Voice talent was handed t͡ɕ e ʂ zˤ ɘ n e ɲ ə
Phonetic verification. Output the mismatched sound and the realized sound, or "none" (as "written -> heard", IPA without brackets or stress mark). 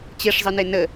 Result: ɲ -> n